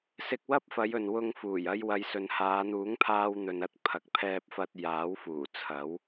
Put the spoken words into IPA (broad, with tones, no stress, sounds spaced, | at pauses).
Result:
s ɪ˧ k̚ w ɐ˥ p̚ f ɐ˨˧ j ɵ˨ n w ʊ˧ ŋ f uː˨˩ j ɐ˧ j w ɐ˨˧ j s ɵ˨ n h aː˨˧ n̪ uː˨˥ ŋ pʰ aː˧ w n̪ ɵ˨ n ɐ˥ t̚ pʰ ɐ˨ k̚ pʰ ɛː˧ p̚ f ɐ˧ t̚ j aː˨˥ w f uː˨˩ t͡sʰ ɐ˨˥ w